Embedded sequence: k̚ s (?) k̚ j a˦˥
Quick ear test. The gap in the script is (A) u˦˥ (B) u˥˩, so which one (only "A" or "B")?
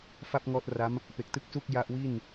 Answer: B